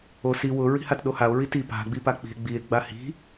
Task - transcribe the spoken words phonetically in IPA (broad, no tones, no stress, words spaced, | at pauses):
o si wʊ ɹi̤hatɗohao̯ ɹiti pa̤ ɡ͡bipak͡pi̤e̯ ɡ͡bie̯ ɡ͡bahi̤